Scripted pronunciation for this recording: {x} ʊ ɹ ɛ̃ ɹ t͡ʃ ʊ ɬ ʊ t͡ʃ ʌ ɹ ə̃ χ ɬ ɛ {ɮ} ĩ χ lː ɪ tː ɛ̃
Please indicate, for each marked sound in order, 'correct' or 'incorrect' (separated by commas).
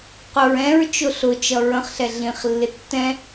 incorrect, correct